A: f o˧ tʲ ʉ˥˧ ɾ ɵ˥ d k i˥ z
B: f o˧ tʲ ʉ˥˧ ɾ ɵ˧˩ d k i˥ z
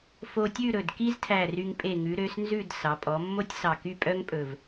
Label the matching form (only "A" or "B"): B